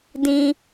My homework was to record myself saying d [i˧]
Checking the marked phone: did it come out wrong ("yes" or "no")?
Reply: yes